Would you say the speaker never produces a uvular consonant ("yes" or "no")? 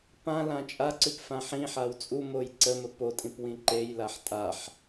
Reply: yes